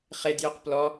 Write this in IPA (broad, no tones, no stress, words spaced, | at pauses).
χedjøq plɔ